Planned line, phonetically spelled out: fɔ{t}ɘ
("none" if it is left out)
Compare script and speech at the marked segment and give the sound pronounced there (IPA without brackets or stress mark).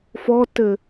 t